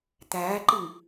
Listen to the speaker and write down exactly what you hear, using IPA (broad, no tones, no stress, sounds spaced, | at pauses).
t̪ æː ǃ i ŋ